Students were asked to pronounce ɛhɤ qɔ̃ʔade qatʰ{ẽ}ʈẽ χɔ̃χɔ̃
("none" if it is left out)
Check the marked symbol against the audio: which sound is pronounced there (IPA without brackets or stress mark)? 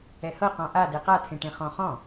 ẽ